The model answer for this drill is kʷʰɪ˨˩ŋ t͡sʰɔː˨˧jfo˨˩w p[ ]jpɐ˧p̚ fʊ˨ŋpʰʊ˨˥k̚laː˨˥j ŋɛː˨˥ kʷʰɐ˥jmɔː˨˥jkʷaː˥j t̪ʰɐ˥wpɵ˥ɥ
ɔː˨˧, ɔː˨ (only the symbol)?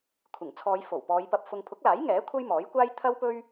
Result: ɔː˨˧